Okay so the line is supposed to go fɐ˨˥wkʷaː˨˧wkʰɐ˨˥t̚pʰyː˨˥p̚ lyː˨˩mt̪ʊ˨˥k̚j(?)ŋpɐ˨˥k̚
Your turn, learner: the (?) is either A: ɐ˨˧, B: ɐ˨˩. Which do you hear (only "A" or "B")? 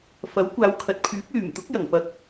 B